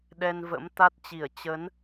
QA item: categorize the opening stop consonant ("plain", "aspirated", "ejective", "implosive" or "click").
implosive